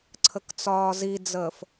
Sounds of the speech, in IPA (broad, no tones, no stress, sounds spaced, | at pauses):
ǀʰ ə k t͡s ɒː z i d͡z əː f